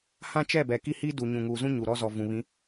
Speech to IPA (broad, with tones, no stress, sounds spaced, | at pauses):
h ã˦ t͡ʃ ɛ˦˨ b ɛ˨ k i˦ h i˦ d u˨ ɲ ũ˨ ŋ uː˨ z ũ˦ ɲ u˨ ɾ ɔ˦ z ɔ˨ v ũ˨ β ĩ˨˦